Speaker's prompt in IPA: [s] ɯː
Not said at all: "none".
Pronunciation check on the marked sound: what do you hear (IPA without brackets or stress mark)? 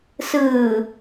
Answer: s